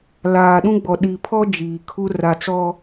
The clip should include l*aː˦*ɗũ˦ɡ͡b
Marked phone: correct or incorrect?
incorrect